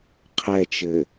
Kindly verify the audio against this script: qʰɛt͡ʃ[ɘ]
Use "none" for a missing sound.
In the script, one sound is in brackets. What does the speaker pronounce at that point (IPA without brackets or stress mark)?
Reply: ɘ